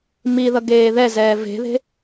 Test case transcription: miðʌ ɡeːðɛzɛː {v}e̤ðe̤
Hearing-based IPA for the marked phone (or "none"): v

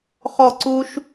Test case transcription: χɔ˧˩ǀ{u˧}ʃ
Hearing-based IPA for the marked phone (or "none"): u˧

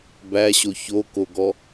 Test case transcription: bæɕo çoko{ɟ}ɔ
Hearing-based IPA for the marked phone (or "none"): ɡ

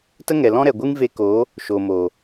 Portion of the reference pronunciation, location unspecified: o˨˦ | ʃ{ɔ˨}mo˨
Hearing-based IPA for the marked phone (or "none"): o˨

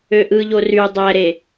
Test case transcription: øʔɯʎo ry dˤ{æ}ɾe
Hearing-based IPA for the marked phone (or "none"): æ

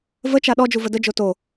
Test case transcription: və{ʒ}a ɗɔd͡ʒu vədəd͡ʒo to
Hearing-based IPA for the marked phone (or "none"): t͡ʃ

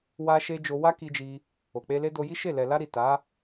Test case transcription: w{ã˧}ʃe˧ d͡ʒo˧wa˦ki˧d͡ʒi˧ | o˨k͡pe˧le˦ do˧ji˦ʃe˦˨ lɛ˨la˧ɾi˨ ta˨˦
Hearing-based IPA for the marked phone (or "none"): a˧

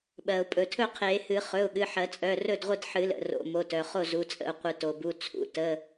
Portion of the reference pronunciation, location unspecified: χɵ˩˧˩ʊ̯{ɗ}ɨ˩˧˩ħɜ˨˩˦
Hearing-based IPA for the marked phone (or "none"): ɠ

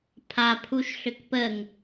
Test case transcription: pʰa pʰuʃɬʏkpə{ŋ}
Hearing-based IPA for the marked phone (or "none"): ŋ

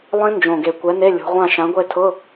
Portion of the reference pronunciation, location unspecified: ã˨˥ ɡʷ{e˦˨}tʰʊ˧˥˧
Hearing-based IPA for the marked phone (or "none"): e˦˨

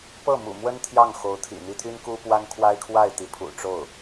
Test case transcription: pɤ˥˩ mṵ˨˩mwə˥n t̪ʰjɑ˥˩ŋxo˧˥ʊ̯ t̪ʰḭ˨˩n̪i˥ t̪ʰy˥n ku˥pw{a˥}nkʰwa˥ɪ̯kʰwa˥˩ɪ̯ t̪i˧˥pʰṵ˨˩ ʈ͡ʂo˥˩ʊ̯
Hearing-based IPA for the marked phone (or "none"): a˥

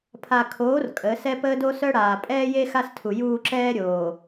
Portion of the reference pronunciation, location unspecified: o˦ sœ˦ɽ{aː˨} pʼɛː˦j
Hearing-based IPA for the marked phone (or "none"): aː˨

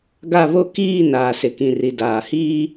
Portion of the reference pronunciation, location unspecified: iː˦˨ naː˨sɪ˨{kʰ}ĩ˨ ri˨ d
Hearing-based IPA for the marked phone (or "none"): k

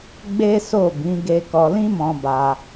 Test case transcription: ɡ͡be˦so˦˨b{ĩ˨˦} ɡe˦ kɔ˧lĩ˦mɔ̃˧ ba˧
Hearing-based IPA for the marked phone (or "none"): ĩ˨˦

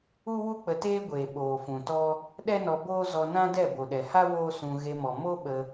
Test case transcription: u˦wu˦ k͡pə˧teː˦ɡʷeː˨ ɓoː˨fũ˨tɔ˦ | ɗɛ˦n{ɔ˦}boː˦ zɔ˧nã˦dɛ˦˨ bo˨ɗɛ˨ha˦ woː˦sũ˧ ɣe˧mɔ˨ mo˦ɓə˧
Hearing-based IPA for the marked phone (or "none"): ɔ˧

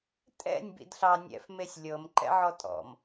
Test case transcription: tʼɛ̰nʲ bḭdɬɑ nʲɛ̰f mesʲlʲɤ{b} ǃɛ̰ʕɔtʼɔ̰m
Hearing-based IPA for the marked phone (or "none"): m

